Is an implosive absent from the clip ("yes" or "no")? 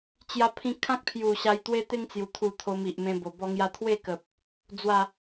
yes